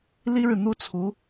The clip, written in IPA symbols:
li˥ɻɻ̩˨ n̪u˥t͡sʰu˧˥

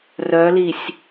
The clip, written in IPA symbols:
rœlisʲ

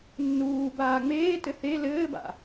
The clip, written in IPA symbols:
nːuːbaː ŋ͡meː tɘθe lɘːba̰

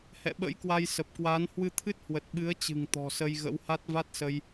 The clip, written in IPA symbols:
hɛ̰˧˨ɓə̰˧˥jkwa˧j sə˨˩p̚kwaː˨˦n hwɨ˧t̪ʰɨ˦˥t̚ hwə˨˩t̚ɓɨ˨˦ə̯t͡ɕɨ̤˨˩ŋ t̪ɔ̤˨˩sə˧jɣə̰˧˥wha˦˥t̚ va˦˥t̚sə˧j

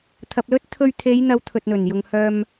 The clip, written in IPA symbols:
t̪ʰɐ˨p̚lɵ˥t̚ t̪ʰɵ˧ɥt̪ʰe˨˧jn̪ɐ˨˧w t̪ʰɵ˨t̚n̪ɵ˨˩njʊ˨ŋ hœː˧m

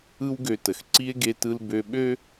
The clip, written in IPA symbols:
ɯ˥wɡø˧tə˩xǀi˥e̯ ɡe˧tɯ˧l bø˧ɓø˥

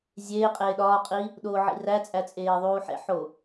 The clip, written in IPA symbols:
zʲeːqʼeː ɗɒːqʼi | ɗoːʕḭræt͡sʼæ t͡sʼeːðˤuːħḛħo

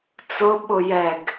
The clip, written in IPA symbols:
t͡sʊɓʊ jɛɡ

